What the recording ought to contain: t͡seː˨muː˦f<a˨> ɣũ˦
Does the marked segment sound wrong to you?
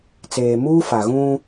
no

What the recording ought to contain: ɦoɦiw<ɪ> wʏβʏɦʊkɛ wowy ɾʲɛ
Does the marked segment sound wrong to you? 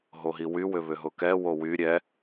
yes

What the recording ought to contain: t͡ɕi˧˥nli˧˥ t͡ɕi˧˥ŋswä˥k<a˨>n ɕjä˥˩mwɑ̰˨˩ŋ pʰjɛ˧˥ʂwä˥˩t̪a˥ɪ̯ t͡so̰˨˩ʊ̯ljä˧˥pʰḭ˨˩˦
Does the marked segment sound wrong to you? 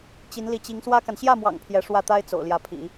no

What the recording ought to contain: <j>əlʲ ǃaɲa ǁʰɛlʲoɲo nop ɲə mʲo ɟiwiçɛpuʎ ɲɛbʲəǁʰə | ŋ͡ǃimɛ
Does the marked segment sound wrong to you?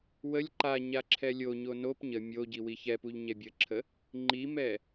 yes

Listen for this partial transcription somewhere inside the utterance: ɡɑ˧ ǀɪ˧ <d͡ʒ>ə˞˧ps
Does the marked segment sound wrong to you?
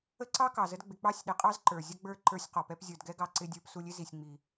yes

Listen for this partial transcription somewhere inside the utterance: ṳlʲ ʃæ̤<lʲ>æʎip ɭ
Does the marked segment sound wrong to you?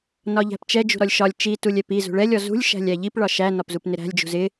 no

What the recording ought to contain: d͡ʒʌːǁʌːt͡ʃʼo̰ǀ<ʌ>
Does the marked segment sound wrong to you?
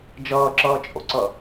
no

